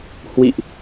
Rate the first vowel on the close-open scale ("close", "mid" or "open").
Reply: close